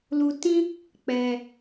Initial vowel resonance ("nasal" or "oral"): oral